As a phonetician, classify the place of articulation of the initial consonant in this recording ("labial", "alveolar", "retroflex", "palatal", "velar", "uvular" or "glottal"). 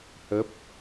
glottal